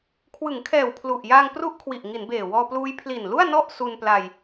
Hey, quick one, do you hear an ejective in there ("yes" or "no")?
no